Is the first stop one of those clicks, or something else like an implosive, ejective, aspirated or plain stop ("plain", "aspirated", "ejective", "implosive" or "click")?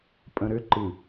ejective